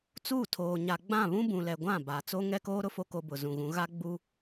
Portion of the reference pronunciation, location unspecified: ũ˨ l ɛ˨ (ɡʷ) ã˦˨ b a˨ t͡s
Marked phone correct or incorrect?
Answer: correct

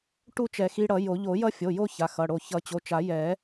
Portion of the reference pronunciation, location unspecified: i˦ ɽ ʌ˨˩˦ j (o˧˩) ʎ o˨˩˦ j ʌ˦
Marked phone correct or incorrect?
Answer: incorrect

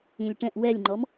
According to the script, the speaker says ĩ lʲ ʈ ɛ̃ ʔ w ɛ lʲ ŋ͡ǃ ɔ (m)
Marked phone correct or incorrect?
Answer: correct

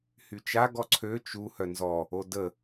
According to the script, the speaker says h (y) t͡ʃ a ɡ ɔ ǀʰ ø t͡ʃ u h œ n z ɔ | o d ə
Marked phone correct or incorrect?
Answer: correct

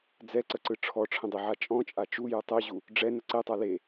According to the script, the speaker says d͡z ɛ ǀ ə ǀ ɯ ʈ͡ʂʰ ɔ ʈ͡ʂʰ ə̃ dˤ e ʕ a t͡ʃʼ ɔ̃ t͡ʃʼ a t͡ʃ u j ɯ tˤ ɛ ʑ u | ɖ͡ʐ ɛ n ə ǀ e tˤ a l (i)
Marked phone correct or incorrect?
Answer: incorrect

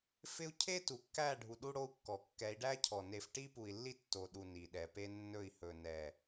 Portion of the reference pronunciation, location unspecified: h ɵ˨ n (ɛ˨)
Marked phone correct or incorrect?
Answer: correct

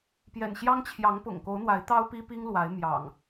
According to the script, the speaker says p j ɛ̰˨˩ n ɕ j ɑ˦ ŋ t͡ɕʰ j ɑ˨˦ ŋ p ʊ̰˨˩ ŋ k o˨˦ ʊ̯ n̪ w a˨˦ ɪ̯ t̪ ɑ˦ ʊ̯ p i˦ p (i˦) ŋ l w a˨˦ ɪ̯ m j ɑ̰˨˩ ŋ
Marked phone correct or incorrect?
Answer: correct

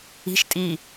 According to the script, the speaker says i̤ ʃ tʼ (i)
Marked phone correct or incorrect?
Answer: correct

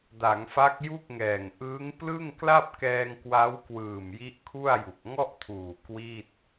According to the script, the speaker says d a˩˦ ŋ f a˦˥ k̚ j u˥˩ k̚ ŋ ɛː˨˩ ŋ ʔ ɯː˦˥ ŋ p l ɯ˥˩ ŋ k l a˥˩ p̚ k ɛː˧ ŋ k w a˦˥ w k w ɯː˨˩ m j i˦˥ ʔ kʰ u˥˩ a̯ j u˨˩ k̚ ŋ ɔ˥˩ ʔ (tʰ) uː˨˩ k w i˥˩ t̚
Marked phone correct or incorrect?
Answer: correct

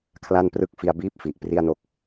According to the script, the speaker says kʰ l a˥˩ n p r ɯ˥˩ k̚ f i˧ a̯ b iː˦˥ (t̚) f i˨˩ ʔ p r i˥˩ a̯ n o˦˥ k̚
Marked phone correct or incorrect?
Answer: incorrect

